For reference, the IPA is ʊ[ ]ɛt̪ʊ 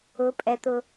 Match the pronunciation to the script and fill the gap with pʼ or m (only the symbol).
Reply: pʼ